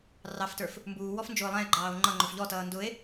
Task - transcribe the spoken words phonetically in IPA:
rɑftə˞f | mbuːwɔf nd͡ʒʊːlˠæ̃e̯ɡ͡ǃɑːo̯ ŋ͡ǃʌŋ͡ǃʊf ʎɔtʌː ndʊe̯

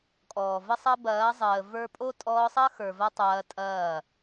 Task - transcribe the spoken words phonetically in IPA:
kʼɔː˨və˦sˤɐ˦ bɐː˨˦zˤəː˨ və˞˧pʼo˦ tʼɔː˧sˤɐ˦xə˞˨vɐ˧ tˤɐː˧tʼɐː˦˨

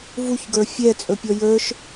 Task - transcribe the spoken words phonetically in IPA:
vuçɡə˞ fʲɛt͡sʼɵpʲɔ jə˞ʃ

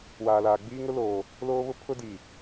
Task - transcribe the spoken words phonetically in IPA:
waː˨laː˨ ɡ͡biː˦ŋʊ˦loː˨ | loː˦βʊ˦ pʰʊ˦di˨

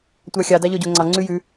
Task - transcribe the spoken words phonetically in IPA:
tʷɑxʲɑ dɑʎɔɟoŋ͡ǀɑ ŋ͡ǀʉjʉ

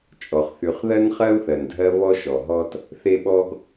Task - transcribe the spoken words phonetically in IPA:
t͡ʃʼɔ˩χθy˨χðɜ˦n χɜ˥u̯θɜ˨ndʱɜ˦ βɔ˦ʃɔ˩ɦɔ˦t | θe˦ɓɔ˦ɡ

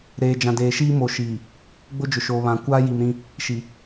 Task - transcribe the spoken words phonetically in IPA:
ɾeː˨d͡ʒã˨deː˨ʃiː˦ mo˨ʃiː˨ | ɡ͡bʊ˦d͡ʒʊ˨ʃoː˨βã˨ kʷaː˦ ji˨mɾĩ˦ | ʃi˨

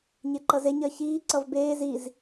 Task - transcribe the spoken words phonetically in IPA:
ɲeǃʌzeɲ ɜçiː ǀʌvbeːz iz

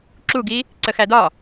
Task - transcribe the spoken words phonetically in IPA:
ǁuɡi | ǀəxædɒ

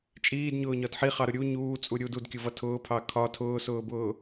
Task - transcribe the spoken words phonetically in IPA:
t͡ʃʼiːdɲʊːɲɒd ħiχɑɾʊ ɾʲu ɲuːt͡sʼu ɾʲud udkʲʊvʌ tʰʊːpʰɑ kʰɒ tʰʊːsʊːbʊː

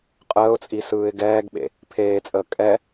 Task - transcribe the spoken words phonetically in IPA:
qʼəːʊ̯t͡sʼi sɯːɪ̯ɡɛːɡɓḛ | pʰeːt͡sʼəː kʼɛ

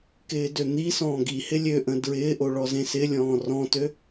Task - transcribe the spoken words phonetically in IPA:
kɪːdøn̪isɔ̃ː ɡihɪ lʲøʔə̃ dɹɪːʔo ɭɔzẽsɪlʲɔ̃ː rɔ̃tø

